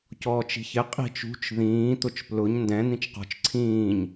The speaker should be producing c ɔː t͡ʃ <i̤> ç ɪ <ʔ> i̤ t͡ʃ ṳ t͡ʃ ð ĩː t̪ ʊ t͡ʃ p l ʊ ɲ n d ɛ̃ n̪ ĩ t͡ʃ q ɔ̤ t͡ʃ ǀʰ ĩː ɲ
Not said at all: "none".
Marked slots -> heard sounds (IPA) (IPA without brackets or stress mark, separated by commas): i̤, qʼ